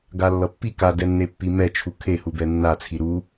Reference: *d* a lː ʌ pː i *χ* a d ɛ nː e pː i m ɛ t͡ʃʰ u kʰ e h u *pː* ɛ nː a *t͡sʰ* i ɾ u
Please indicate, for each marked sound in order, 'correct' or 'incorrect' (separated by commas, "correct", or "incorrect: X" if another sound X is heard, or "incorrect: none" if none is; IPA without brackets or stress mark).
incorrect: ɡ, incorrect: k, incorrect: b, correct